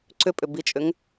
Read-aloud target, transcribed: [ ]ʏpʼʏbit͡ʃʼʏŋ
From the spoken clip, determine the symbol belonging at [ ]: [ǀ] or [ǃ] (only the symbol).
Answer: ǀ